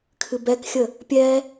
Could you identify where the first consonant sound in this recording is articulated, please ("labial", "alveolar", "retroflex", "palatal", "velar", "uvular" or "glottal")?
velar